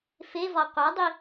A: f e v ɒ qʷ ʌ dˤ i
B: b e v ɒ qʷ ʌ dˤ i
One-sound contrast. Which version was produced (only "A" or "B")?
A